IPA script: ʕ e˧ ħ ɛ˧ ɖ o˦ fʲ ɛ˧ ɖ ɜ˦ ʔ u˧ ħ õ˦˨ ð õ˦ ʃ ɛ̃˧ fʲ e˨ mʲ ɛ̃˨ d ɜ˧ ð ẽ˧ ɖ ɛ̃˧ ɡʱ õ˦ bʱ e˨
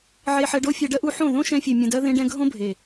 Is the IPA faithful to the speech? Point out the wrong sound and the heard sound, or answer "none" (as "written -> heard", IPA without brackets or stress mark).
none